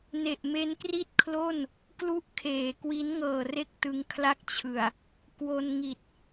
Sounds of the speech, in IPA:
n e˨˩ ʔ m e˦˥ n k r i˥˩ t̚ kʰ l o˥˩ n | k l u˥˩ ʔ kʰ eː˨˩ k w i˦˥ n ŋ ɤː˨˩ r e˦˥ k̚ t ɯ˧ ŋ kʰ l a˥˩ k̚ t͡ɕʰ ɯ˨˩ a̯ | k w o˧ n ŋ i˨˩ t̚

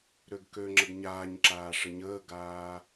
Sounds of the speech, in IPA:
ɾ ø ɡ k ø ŋ͡ǁ ə ɡ ɲ aː ɲ ǁ aː ʂ ə ɲ əː ɡ aː

